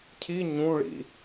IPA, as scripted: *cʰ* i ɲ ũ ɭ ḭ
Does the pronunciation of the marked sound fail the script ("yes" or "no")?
no